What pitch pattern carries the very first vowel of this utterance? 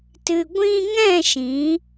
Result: low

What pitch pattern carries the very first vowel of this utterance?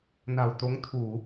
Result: low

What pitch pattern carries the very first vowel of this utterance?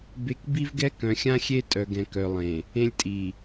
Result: high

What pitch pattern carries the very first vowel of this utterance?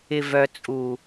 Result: low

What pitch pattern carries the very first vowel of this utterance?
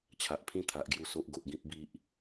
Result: low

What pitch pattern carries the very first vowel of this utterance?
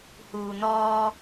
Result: low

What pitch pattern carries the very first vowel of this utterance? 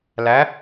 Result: rising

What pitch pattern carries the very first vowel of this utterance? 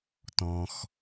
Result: low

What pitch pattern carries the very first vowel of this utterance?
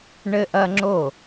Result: high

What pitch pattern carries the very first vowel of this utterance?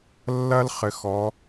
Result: high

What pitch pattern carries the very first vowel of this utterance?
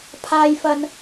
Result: low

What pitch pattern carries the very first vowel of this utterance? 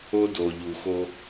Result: high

